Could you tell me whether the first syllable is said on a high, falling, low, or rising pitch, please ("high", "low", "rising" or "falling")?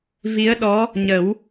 rising